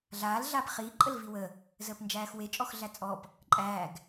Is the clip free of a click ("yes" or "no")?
no